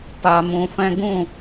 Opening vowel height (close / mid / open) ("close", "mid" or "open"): open